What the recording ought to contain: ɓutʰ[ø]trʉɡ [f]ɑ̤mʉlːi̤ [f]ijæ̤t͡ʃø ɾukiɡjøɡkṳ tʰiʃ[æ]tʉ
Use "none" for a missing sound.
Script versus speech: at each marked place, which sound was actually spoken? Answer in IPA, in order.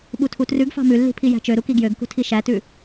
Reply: u, f, pʰ, æ

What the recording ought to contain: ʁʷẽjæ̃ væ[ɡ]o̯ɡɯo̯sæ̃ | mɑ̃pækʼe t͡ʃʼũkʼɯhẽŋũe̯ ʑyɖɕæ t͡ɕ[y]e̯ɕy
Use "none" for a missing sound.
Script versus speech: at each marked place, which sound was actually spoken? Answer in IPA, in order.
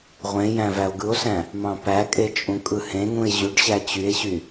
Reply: none, y

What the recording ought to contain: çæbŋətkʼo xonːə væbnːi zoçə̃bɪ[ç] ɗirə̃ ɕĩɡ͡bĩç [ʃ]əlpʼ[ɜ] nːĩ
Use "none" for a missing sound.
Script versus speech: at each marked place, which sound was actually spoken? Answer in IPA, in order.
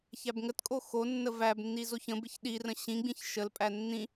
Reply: ç, ʃ, æ

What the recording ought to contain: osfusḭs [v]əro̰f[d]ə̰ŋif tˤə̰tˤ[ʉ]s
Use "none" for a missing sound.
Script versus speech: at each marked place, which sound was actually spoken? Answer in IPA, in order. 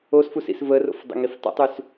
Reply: v, dˤ, ʉ

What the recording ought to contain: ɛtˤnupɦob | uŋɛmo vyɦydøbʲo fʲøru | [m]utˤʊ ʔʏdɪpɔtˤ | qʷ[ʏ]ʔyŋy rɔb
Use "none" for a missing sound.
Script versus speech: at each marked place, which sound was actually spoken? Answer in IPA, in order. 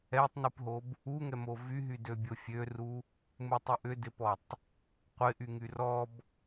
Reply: m, ɪ

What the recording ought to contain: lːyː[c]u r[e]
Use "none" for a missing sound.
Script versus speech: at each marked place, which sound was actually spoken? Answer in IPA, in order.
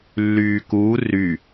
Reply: k, y

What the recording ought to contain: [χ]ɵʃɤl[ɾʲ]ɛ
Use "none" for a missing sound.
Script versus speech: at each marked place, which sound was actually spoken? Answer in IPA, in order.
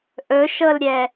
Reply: ʔ, ɾʲ

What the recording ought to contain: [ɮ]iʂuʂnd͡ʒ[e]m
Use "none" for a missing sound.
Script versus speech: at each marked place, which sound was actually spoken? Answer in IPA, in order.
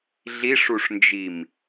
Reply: ɮ, i

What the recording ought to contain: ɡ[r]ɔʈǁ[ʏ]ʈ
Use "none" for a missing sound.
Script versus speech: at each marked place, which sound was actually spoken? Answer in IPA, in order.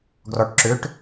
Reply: r, ʏ

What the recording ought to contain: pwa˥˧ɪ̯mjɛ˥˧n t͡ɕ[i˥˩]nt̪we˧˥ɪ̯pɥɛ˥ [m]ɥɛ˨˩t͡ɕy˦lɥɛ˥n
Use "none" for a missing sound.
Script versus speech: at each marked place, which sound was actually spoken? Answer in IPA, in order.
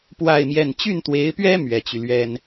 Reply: y˥˩, m

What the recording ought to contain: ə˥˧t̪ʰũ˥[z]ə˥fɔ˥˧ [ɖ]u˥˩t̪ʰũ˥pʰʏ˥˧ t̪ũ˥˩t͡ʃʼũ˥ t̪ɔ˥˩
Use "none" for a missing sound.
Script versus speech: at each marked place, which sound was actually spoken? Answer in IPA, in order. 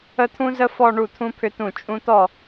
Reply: z, ɳ

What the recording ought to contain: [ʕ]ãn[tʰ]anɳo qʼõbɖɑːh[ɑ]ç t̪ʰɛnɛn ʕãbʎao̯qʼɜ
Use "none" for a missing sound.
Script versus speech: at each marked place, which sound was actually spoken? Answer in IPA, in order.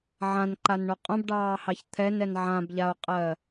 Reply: ʕ, ǃ, ɑ

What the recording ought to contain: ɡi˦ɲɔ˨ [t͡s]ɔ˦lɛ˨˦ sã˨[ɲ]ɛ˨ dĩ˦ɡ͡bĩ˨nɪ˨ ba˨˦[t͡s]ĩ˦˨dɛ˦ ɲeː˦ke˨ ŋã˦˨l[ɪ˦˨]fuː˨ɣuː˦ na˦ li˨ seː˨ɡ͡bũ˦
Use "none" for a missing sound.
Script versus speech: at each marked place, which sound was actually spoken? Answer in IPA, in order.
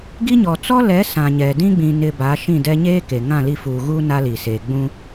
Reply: t͡s, ɲ, ʃ, i˦˨

